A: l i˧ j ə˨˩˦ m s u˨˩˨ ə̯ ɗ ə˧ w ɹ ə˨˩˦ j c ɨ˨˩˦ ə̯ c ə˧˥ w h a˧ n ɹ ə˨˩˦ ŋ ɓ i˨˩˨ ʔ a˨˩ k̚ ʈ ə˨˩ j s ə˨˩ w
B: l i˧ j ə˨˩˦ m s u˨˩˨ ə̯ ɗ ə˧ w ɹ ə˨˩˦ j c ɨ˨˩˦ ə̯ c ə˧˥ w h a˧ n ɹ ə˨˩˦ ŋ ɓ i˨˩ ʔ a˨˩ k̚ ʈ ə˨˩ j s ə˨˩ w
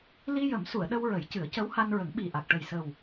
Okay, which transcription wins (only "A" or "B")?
B